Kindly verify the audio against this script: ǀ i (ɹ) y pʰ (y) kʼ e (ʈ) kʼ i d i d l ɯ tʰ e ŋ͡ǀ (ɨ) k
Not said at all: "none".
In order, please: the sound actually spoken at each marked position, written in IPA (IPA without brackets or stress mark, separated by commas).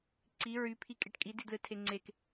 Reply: ɹ, i, ʈ, e